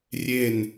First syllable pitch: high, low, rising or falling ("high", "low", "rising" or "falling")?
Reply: falling